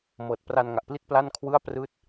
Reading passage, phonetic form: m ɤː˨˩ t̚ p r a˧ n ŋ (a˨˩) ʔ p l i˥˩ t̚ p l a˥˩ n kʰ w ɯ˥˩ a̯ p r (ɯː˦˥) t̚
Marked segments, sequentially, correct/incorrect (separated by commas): correct, incorrect